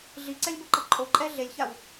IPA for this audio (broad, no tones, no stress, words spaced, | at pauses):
ɮiǀɛlʲboǃʌ ǃʼoǃʼɛ ɮelʲçaw